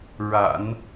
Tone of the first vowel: low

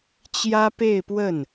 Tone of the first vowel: high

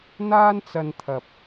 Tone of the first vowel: high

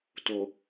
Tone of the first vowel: low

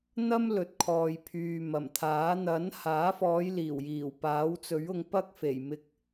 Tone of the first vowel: high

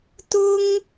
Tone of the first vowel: high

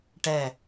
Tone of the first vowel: falling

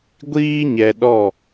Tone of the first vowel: high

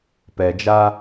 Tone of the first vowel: low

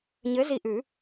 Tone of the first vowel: rising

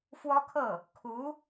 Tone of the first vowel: high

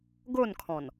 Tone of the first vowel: falling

